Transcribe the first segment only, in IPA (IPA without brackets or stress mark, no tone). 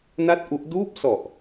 n